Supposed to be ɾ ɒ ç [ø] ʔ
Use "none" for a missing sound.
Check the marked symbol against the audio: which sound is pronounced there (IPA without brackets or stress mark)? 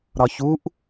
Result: u